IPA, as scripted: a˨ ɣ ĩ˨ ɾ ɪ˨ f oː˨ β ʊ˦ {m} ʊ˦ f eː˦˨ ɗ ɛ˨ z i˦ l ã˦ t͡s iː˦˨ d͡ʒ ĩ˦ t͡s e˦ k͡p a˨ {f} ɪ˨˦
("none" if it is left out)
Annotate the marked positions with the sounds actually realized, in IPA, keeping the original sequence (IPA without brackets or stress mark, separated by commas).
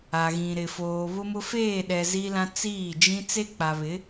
m, β